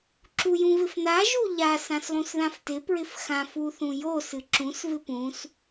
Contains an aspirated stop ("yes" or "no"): no